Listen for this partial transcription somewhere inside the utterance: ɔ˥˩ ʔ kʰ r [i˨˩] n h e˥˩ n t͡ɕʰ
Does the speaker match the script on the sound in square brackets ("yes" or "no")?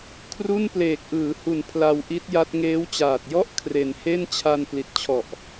no